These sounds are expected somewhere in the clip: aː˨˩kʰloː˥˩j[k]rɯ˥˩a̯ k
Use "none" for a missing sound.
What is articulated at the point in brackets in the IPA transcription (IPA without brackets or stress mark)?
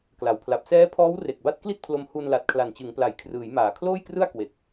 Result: k